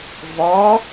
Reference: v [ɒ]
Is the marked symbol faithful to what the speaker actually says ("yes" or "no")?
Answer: yes